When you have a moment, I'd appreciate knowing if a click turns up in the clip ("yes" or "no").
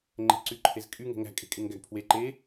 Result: yes